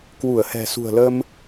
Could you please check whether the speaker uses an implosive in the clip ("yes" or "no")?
no